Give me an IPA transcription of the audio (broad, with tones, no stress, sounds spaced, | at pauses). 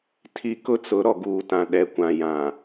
tʰ i˦ k ʊ˦ t͡s ʊ˨˦ ɾ ɔ˨ ɡ uː˨ t ã˨ ɗ ɛ˨ kʷ ã˨ j ã˨